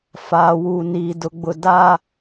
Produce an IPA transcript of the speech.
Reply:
f aː˨ w uː˨ n iː˨ d ʊ˨ ɡ͡b ʊ˨ d a˦

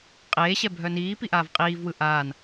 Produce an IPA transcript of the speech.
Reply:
qʼ eː ɕ ɛ bʱ œ n iː p i ʔ aː v qʼ iː v w ɯ ʔ aː n

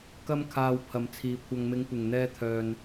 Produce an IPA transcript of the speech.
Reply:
k ɐ˥ m kʰ aː˧ w pʰ ɐ˨˧ m t͡sʰ iː˨˧ kʷʰ ɐ˨ ŋ m ɪ˨˧ ŋ kʷ ɪ˨˩ ŋ n̪ ɛː˧ t̪ʰ œː˨ n

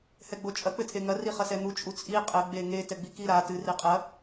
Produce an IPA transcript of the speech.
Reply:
h ɛ ɡ͡b o t͡ʃʼ ɐ k͡p ɘ tʰ e ŋ ɐ r i χ ɐ s ɛ n̪ u t͡ʃʼ u t͡sʼ i qʼ ɘ ɡ͡b e ŋ e t ɛ ɡ͡b i k i ɾ a t ɨ r i qʼ ɐ

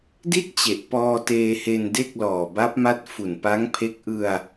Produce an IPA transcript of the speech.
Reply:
d i˥˩ t̚ t͡ɕ e˨˩ ʔ p ɔː˧ t eː˧ h e˧ n d e˥˩ k̚ l ɔː˨˩ b a˦˥ p̚ m a˦˥ t̚ f u˨˩ n p a˦˥ ŋ pʰ e˦˥ k̚ ʔ ɯ˧ a̯

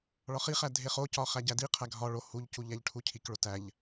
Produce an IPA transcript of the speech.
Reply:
ɭ ɒ χ i χ æ dʱ e χ o c ɒ χ æ ɟ æ d i qʰ æ ɡʱ ɒ ɭ o h u ʎ c u ʎ æ ʎ ʈʰ u cʰ i k ɭ o t æ ʎ

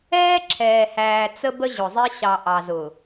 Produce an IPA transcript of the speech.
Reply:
ɛː˦ ǁʰ ɛː˨ h æː˨ t͡s ə˦ b ə˦ ʑ ʊ˨ zˤ ɪ˦ ɕ ɑ˨ ʔ ɑ˨ z ʊ˨

